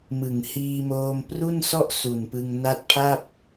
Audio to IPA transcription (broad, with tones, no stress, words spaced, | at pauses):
mɯ˨˩ŋ hiː˧moː˧m pru˥˩nsɔ˥˩ʔ su˨˩npɯ˧ŋ na˦˥t̚pʰa˥˩p̚